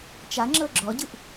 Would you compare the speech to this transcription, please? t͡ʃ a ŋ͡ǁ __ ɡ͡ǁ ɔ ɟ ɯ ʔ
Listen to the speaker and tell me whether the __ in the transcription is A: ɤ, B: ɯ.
A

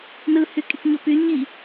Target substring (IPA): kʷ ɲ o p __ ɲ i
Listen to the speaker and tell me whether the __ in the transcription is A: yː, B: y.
B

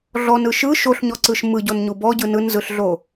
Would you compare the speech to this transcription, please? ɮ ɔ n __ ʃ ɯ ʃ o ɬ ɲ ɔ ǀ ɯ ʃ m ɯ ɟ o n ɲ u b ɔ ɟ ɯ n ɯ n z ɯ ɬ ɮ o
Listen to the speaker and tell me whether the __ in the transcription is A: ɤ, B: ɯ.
B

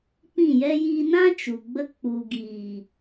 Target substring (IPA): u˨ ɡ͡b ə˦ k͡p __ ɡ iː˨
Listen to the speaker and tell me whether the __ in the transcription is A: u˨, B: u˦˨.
A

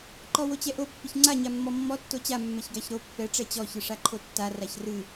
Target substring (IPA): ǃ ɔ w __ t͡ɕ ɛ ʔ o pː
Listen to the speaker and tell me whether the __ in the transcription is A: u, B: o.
B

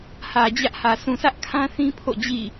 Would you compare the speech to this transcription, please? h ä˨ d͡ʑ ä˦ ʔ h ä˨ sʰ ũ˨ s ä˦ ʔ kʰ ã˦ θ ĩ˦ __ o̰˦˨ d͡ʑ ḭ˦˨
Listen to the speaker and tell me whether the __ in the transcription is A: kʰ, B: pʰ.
B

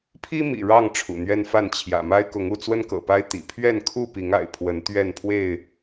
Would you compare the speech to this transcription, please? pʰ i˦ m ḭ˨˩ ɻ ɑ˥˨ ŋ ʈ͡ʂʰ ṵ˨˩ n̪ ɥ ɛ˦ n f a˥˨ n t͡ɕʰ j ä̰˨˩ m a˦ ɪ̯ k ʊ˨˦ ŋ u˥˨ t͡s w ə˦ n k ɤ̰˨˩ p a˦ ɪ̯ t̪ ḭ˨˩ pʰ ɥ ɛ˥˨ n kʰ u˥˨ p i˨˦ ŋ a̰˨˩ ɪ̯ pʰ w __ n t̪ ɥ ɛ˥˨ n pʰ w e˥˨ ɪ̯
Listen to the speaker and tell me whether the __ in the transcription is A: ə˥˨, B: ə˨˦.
B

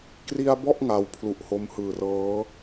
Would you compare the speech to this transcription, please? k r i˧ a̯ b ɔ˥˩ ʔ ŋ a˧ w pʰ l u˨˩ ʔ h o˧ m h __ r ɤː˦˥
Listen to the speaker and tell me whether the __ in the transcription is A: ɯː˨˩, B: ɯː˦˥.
A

